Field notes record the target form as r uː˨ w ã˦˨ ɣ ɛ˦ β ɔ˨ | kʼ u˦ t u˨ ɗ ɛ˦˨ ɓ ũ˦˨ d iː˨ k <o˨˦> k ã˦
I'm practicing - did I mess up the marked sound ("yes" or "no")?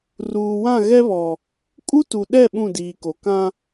yes